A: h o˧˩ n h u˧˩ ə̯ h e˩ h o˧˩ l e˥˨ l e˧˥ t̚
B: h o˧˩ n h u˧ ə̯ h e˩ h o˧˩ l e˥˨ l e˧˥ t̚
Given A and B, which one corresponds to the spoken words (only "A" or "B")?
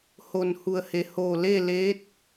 A